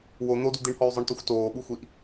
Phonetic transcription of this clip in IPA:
w o n̪ o d u d̪ i ɳ h ɔ y̯ zˤ ə˞ ɳ t o xʷ t oː ɓ u xʷ i ʔ

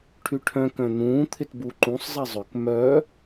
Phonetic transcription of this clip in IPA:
ʈʰ y ʈʰ œ̃ k œ̃ n̪ ũː t̪ʰ ɪ t b u ǃ ũ sˤ zˤ e zˤ ʏ k m œ

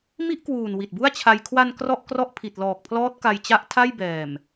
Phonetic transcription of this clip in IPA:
m i˥˩ ʔ k w uː˨˩ n w i˨˩ t̚ b u˥˩ a̯ t͡ɕʰ a˧ j kʰ w a˧ n k r ɔ˥˩ ʔ k r ɔ˥˩ ʔ pʰ i˨˩ t̚ l ɔː˨˩ k̚ pʰ l ɔː˦˥ t̚ k a˧ j t͡ɕ a˦˥ ʔ tʰ a˥˩ j b ɛː˨˩ m

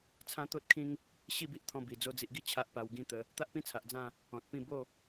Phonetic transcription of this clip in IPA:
t͡sʰ ã˦ t̪ o˦ t̚ kʰ ĩ˦ ŋ | ɕ i˥˧ b i˦ ʔ t̪ʰ ɔ̃˧ b i˨˩ d͡z o˧ d͡z i˨ ʔ ɡ i˥˧ t͡ɕʰ a˦ ʔ p a˧ w ɡ ĩ˦ t̪ ə˧ | t̪ a˦ ʔ p ĩ˦ t͡sʰ a˨ ʔ d͡z ã˥˧ | ɔ̃˨ t̚ p ĩ˥˧ b o˥˧

